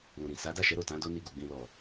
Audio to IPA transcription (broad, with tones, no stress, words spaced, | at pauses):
lũ˨ɾĩ˨ sa˨˦da˦˨ʃɛ˨˦ ɾo˦˨tã˨˦ do˦ ni˧ɡu˨ ɡ͡bĩ˨lɔ˨